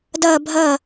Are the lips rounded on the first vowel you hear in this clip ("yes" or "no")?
no